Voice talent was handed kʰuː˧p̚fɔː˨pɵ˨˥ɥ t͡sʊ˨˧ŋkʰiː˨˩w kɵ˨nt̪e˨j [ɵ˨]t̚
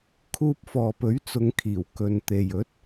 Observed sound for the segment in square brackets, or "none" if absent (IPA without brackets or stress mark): ɵ˨˥